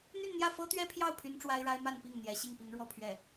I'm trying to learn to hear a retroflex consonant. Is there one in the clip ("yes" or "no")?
yes